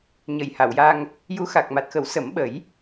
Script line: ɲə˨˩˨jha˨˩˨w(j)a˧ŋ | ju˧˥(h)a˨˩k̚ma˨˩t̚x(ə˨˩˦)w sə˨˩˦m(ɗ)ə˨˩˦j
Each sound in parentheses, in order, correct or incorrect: correct, incorrect: x, correct, incorrect: ɓ

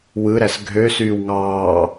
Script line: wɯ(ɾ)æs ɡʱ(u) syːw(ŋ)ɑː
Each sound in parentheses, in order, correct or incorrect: correct, incorrect: ø, correct

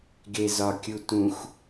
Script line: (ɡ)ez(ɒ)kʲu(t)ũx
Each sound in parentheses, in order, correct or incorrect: correct, correct, correct

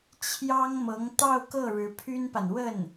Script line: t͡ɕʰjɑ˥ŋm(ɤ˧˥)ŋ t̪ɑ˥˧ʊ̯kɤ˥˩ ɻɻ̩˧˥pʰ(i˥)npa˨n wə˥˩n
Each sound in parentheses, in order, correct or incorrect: correct, incorrect: y˥

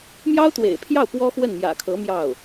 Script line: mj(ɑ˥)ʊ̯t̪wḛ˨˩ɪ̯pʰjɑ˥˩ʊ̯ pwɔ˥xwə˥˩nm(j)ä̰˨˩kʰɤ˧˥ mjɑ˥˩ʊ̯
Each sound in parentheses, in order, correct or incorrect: correct, correct

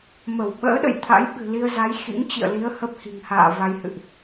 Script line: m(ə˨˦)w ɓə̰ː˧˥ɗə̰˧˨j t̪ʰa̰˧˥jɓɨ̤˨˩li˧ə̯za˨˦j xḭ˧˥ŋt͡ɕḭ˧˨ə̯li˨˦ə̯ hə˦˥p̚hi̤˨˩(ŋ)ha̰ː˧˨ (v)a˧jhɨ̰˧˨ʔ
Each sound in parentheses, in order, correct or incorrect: incorrect: ə˧˩, correct, correct

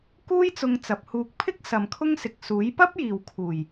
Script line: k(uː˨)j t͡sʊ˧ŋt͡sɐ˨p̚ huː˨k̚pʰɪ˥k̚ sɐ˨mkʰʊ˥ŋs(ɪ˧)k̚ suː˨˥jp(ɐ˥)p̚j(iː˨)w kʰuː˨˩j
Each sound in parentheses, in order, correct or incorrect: incorrect: uː˥, incorrect: ɪ˨, correct, correct

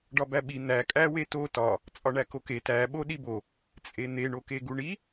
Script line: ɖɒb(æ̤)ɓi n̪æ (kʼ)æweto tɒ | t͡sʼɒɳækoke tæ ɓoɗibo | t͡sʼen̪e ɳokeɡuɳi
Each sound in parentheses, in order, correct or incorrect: incorrect: æ, correct

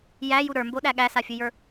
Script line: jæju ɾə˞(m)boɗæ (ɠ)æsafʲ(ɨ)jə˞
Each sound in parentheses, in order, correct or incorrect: correct, correct, correct

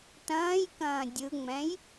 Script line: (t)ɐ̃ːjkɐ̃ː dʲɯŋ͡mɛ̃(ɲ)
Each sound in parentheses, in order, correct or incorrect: correct, incorrect: j

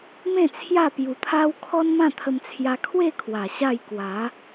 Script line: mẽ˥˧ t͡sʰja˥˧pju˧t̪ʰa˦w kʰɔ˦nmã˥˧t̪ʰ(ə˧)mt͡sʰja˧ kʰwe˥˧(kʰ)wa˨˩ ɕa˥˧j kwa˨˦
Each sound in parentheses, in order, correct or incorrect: correct, correct

